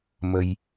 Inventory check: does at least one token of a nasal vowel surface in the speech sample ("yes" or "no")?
no